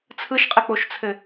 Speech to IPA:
t͡sʰ ɯ ʃ qʼ ɘ k͡p o ʃ t͡sʰ ɘ

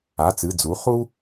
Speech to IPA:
a˩˧˩ t͡s ɨ˩˧˩ d͡z u˩˥ χ u˦

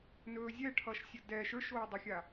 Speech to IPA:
n ɵː zʲ ɛ ʈʰ ʌ ʃ sʲ ʌ d ɛ ʃ ə˞ ʃ oː dˤ ɵ xʲ a

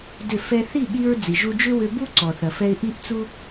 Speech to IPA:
d ʏ˦˨ f ɛ˧ θ i˦˨ ɠ i˧ ɹ d͡z i˨ ʒ u˧ d͡ʒ ʏ˦ w ʏ˧ b u˦ ǀ ɔ˨ θ ɐ˨ f ɛ˧ ɪ̯ ʔ i˦ ʔ t͡s u˦

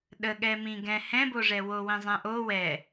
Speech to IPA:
ɗ ə ɠ ɛ m ĩ ɡ ɛ̃ h ɛ̃ b o ʐ ɛ w o w ĩ zˤ ɛ̃ ʔ o w ɛ

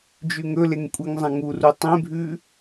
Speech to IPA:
d͡ʒ ʉ ŋ ɵ l e ŋ kʷʼ i ŋ zˤ ã ŋ u r u tˤ ẽ bʱ ʉ

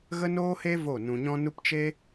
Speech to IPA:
ɣ ə˦ n oː˦ h e˦ v o˦˨ n ũ˧ ɲ ɔ̃˦ n u˦ p t͡ʃ e˦

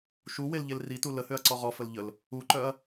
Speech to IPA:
ʃ u w e l ʎ e l r i t u l ə h ø ɐ̯ ǀ ɔ ʁ ɔ f ə l ʎ ə l | u ǃ œ ɐ̯

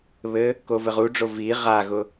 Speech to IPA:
β ɘ | k o v ɘ ʁ u ɖ͡ʐ o v i ʁ a ɣ ʊ

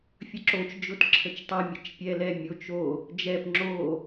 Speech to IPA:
fʲ ə ǁ o t͡ʃ d͡ʒ ʊ t ǁʰ ə t͡ʃ tˤ ɛ mʲ ə t͡ʃ pʲ ɛ l ɛ mʲ o t͡ʃ o | d͡ʒ ɛ p ŋ͡ǁ o

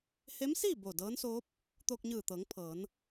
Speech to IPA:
h e˧˥ m s iː˥˨ b o˧˩ d ɤː˧˥ n s oː˧˥ p̚ | t̪ oː˧ k̚ ɲ ɯː˧˩ t̪ ɤː˩˧ ŋ pʰ ɤː˩˧ n

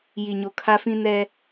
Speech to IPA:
j i˨ ɲ o˨ kʰ a˦ f ĩ˦ n ɛ˦

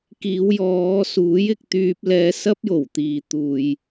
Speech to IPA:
k iː˨˧ w j ɔː˨˧ s uː˨˥ j ɪ˧ k̚ t̪ yː˧ p̚ l ɛː˧ s ɐ˥ p̚ j o˨˩ w t̪ iː˨ t̪ uː˨ j

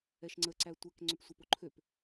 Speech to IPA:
ɛ ʃ ŋ͡ǀ ə ǀ æ tʷ ɛ k ŋ͡ǀ ø p sʷ ɛ p o ǃʰ ø p

